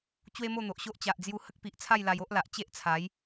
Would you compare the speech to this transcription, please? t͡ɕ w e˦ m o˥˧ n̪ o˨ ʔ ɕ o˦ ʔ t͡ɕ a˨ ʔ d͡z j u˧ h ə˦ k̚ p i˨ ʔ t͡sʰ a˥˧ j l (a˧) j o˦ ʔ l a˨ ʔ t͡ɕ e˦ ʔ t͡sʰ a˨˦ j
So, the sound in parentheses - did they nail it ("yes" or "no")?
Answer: yes